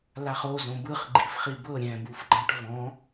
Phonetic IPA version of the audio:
l a χ o z õ b ɯ χ ɡ͡ǃ i f χ i b ɤ ɾʲ ɛ̃ b u f ɡ͡ǃ ã ʈ v ɔ̃

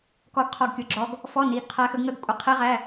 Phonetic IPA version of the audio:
k ɔ˦˥ ɡ qʰ ɔ˦˥ ɡ kʲ ʊ˧˥˧ ɡ͡ǁ ɔ˦˥ ɡ | f ɔ˧˥˧ n i˧˥˧ ɡ qʰ æ˦˥ x ə˦˥ ɡ ŋ ə˦˥ ɡ kʷʼ ə˧˥˧ qʰ i˦˥ ʁ æ˧˥˧

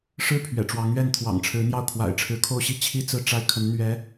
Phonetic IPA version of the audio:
ʂ ɻ̩˥˩ pʰ ɥ ɛ̰˨˩ ʈ͡ʂ w ɑ˧˥ ŋ ɥ ɛ˥˩ n t̪ʰ w ɑ̰˨˩ ŋ ʈ͡ʂʰ ɻ̩˧˥ n̪ j ɑ˥˩ ʊ̯ kʰ w a̰˨˩ ɪ̯ ʈ͡ʂʰ ɻ̩˧˥ kʰ o˥ ʊ̯ ɕ i˥˩ t͡ɕʰ i˥ t͡s ɹ̩˥˩ ʈ͡ʂ a˥ ɪ̯ kʰ ə˧˥ n n̪ ɥ ɛ˧˥

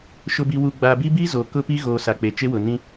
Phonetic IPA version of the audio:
ʃ ʊ˨ b i˨ w u˨ ɡ͡b a˨ b i˦ b i˦ z o˨ k ʊ˦ p i˦ ɣ oː˨ s a˨ k͡p e˨ t͡ʃ e˦ w ʊ˨ n ĩ˦

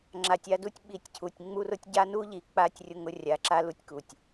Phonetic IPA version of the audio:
ŋ͡ǁ a˧ tʲ a˦ d u˦ tʲ ɓ i˧ tʲ cʰ u˨ tʲ ŋ͡m u˦ r ʊ˦ tʲ ɟ a˦ n u˦ ʎ i˨ k͡p a˧ tʲ rʲ ʊ˦ ŋ ʊ˦ rʲ a˧ ǁ a˦ l u˦ tʲ k u˨ tʲ

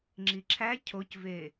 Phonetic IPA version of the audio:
ŋ͡ǁ i ǁʰ æ cʰ o c v e

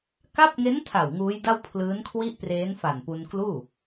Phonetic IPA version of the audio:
k a˦˥ p̚ ŋ e˦˥ n tʰ a˨˩ w ŋ uː˦˥ j d a˥˩ w pʰ l ɯː˦˥ n kʰ w i˥˩ ʔ p r eː˦˥ n f a˨˩ n p u˧ n k l uː˥˩

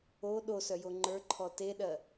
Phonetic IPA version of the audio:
o ɗ o s œ j o ŋ͡ǃ ə˞ ǃʰ ɔ t e ɗ ɜ

